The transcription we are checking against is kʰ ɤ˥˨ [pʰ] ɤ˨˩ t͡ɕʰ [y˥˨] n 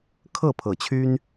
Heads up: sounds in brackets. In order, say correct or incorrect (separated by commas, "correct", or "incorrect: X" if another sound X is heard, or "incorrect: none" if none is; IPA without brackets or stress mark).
correct, incorrect: y˦